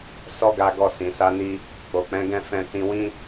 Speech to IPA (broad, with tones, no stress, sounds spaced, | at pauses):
s ɔ˦ ɡ a˧ ɡ ɔ˧ s ĩ˨ s a˨˦ n i˧ | k͡p o˨ k͡p ɛ̃˨˦ ɡ ɛ̃˦˨ f ɛ̃˧ t ĩ˧ w ĩ˦